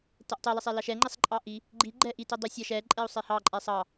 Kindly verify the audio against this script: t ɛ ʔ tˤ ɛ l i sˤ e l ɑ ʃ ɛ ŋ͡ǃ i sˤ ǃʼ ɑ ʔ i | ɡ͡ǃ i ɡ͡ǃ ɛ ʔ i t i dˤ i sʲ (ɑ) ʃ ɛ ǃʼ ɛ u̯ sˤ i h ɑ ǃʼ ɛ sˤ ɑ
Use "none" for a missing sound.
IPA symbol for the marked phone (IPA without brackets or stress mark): ɑ